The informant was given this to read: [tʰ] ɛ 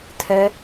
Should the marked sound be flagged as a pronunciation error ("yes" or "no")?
no